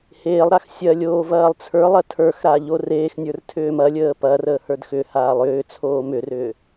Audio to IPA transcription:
h eː lˠ ɾ a x sʲ ɐ lʲ oː v ɐː lˠ t͡sʰ ə˞ lˠ ɐ tʰ ə˞ x ɾ a ʎ o r eː x nʲ ə˞ r tʰ ʏː m ɐ lʲ əː p ɐ r əː h ə˞ d x ʏ h aː lˠ ʏː t͡sʰ oː m ʏ r ʏː

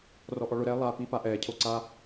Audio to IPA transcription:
r ɔ ʔ ɔ ɭ ʊ ɾ ɛː lˠ a p i p a ʔ ɛː cʰ o ǀ a

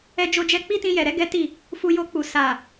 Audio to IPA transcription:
ɛ˧ d͡ʒ o˧ d͡ʒ ɛ˧ k͡p i˦ t ĩ˧ j ɛ˨ ɾ ɛ˨˦ ɡ ɛ˦ t i˦˨ | f u˧ j o˧ k͡p u˨ s a˨

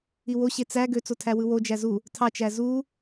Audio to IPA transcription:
i w o ɕ e t͡s æ ɡ ø t͡s o tʰ æ w ɯ w o d͡ʒ æ z u | tʰ ɑ t͡ʃ æ z u

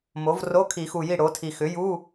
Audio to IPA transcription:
m o˩˥ v r o˧˥˧ kʰ i˨˩˦ x u˨˩ j i˥˩ ɽ o˩˥ tʰ i˨˩ x ʏ˩˥ j u˧˥˧

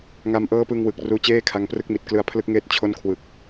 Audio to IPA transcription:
ŋ a˧ m ʔ ɤː˦˥ p ɯ˧ ŋ w ɯ˨˩ k̚ r uː˦˥ t͡ɕ eː˥˩ kʰ a˧ ŋ p r ɯ˦˥ k̚ m i˨˩ t̚ k l ɯ˧ a̯ pʰ l ɯ˦˥ k̚ ŋ eː˦˥ t̚ t͡ɕʰ o˥˩ n kʰ w ɯ˨˩ k̚

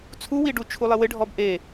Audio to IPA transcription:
t͡sʰ u w i ɖ u t͡ʃʰ u lˠ ɪ w ɪ ɖʱ ɔ b ʔ e

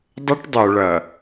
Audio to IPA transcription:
dˤ ə˦ ʈ dˤ œ˨ ɭ ɐ˨

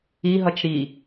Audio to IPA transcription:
i ɦ ʌ t͡ʃ ɾ i

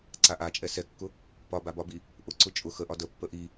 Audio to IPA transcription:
ǀ a ʔ a t͡ʃʼ ɛ s ɛ kː ʊ | p ɒ b a b ɒ b i | ʔ ʊ ǀ ʊ t͡ʃʼ ʊ x ə ʔ ɒ d ə pː ə ʔ i

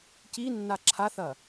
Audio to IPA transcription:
c i nː a ǁʰ a θ ɐ

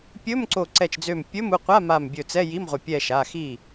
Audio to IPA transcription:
pʲ ɵ˧˥˧ m ǀ o˧˩ ǀ ɛ˧˩ t͡ʃ d͡z ø˧˩ m pʲ ɵ˧˥˧ m u˩˧˩ qʷ a˧˥˧ m a˧˩ m bʲ ɵ˧˩ t͡s ɛ˧˥˧ j i˧˥˧ m ʁʷ ɐ˧˩ pʲ ɛ˧˩ ʃ a˩˧˩ x i˧˩

